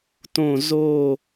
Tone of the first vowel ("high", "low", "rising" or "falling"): falling